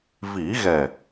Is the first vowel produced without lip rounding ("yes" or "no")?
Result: yes